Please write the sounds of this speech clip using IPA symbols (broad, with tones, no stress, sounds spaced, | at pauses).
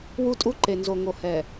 w u˦˨ tʼ u˦ ǃ e˨ n z o˨ ŋ o˨ h ɛ˨